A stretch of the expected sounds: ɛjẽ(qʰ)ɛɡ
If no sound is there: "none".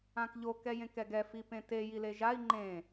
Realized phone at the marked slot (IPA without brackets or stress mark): k